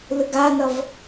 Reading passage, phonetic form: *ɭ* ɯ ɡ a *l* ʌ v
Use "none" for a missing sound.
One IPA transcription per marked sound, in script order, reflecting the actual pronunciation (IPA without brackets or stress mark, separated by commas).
l, n